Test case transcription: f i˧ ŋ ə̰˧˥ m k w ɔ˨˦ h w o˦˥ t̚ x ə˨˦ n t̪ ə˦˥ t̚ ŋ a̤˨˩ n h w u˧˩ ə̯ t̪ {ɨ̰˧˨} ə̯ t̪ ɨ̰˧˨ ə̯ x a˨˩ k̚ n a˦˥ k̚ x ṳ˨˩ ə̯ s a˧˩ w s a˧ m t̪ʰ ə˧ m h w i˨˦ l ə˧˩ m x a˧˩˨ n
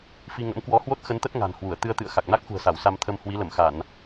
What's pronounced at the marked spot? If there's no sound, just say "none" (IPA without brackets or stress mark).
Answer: ɨ˧